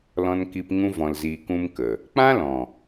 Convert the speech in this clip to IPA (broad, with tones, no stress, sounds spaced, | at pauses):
l ɔ̃˧ n k i˧ p ŋ ũ˧ v ɔ̃˨ l z iː˨ k ũ˧ m k ə˨ | k͡p ã˦ l ɔ̃˨